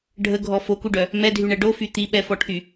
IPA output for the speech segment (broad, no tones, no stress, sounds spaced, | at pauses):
ɖʱ ə ɡʱ ɔ f o k u ɖ œ | m ɛ dʱ y ɳ ɛ ɖ o f y t̪ i ɓ ɛ f ɔ ʈʰ y